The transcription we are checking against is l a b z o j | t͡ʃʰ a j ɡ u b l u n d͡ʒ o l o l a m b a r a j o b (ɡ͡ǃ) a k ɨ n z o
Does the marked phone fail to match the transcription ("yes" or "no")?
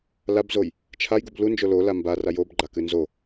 no